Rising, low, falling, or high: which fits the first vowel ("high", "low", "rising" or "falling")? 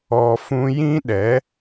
low